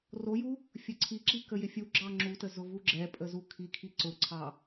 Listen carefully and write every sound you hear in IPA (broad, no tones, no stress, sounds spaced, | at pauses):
r o j u | fʲ ə ǀʰ i ǁ i k ə j ɪ fʲ u ɡ͡ǁ ɑ ŋ͡ǁ u t ə z ʊ v u ɡ͡ǁ ɛ pʼ ə z u kʰ i kʰ i ǀ ʊ ǀʰ ɑ